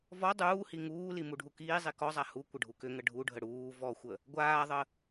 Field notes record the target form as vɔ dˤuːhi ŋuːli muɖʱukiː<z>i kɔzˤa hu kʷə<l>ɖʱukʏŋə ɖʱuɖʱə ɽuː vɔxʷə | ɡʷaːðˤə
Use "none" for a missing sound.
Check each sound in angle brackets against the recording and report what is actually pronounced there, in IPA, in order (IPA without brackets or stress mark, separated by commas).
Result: zˤ, none